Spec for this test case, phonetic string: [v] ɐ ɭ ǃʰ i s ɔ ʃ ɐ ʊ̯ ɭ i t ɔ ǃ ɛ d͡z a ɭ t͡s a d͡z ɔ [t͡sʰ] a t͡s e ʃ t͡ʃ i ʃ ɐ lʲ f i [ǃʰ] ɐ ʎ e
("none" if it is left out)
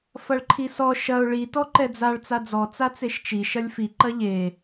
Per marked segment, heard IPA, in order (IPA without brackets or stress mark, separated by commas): f, t͡s, ǃ